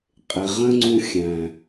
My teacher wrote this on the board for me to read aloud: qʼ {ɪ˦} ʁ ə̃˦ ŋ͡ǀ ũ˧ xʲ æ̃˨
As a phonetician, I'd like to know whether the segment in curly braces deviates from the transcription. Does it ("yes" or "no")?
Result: yes